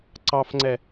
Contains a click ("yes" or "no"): yes